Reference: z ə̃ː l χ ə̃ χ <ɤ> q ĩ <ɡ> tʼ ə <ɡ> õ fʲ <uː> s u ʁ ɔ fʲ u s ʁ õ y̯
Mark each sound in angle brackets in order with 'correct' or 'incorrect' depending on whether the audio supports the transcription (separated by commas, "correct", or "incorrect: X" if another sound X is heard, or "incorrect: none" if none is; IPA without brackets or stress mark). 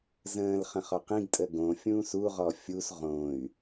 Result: incorrect: ɔ, correct, correct, incorrect: ũː